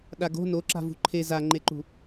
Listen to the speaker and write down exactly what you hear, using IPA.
ɗ a ɡ o̤ n o ǁ a̤ v ṳ ǃʰ e z a ŋ͡ǃ e ǃ ṳ

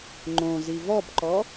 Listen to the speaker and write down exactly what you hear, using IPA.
ŋ͡ǃ õ z i v ɔ b ǃ ɔ

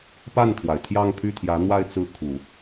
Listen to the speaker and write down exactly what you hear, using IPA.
p a˥˩ n t̪ʰ w a˩ ɪ̯ t̪ʰ j ɑ˥˧ ŋ pʰ y˥˩ t̪ʰ j ä˧˥ n̪ w a˥˧ ɪ̯ t͡s ɹ̩˥˩ kʰ u˨˩˦

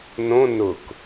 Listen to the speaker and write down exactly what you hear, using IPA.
n õ n ʊ k

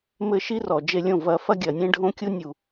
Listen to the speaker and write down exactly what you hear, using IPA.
m ɘ˧ ʃ i˦ r ɔ˨ d͡ʒ e˧ lʲ õ˦˨ v ɐ˧ f ɐ˦ ɡʲ ɐ˨ nʲ ẽ˦ ɖʱ õ˦ kʲ u˦ nʲ u˨

